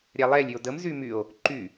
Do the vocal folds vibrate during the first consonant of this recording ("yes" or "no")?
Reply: yes